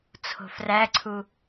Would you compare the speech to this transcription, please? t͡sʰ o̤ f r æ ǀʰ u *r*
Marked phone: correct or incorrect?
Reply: incorrect